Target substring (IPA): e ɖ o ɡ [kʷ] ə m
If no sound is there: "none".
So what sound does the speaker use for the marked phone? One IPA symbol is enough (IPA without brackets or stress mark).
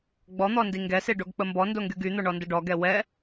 k͡p